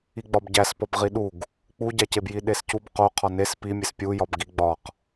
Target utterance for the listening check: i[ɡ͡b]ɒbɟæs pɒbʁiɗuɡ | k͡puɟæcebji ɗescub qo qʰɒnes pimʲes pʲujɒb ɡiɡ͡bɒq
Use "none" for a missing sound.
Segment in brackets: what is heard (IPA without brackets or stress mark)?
ɡ͡b